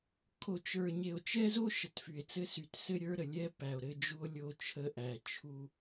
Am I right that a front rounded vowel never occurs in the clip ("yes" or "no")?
no